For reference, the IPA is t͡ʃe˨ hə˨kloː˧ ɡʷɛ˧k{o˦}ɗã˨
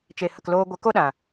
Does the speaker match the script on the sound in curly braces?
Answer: yes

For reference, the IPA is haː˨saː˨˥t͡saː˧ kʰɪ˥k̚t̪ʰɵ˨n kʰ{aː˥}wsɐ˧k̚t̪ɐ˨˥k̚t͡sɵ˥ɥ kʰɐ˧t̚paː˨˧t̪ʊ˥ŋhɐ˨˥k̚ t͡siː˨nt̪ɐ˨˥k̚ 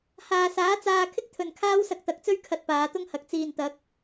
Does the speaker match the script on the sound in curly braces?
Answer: yes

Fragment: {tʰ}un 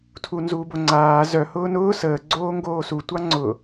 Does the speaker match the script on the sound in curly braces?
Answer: yes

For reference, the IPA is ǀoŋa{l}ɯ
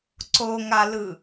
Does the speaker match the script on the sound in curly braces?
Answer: yes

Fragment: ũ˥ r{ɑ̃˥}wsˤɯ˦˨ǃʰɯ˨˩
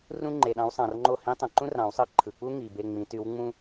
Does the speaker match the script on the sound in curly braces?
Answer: no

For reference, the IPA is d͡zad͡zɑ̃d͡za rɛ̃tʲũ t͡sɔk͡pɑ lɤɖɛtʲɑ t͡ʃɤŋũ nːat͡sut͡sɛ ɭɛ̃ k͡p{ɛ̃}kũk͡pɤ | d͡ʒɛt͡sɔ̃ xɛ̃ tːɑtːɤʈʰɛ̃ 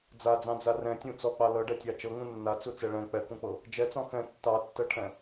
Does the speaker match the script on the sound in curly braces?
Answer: no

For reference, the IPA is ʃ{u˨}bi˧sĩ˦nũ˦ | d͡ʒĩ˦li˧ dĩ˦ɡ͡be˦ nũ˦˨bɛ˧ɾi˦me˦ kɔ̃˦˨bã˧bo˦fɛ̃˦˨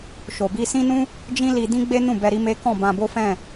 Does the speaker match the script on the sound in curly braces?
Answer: no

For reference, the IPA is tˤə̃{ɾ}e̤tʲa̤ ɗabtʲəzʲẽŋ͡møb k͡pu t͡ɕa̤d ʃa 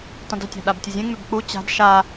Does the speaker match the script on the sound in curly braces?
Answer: no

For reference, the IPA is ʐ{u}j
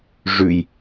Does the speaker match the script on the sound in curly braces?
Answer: no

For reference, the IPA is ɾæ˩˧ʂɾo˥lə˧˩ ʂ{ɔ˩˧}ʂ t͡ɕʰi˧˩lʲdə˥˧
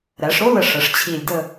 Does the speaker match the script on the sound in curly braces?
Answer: no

